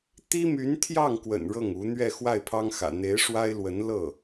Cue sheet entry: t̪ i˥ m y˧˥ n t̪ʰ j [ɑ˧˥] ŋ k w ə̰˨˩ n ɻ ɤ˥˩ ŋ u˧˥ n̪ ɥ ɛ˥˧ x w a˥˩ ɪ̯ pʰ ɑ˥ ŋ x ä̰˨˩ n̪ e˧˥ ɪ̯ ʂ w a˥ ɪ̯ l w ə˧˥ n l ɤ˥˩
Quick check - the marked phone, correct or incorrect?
incorrect